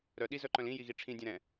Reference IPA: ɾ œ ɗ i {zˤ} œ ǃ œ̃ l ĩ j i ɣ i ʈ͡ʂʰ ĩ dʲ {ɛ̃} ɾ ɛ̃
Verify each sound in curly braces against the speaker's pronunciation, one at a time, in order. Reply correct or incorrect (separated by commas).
incorrect, correct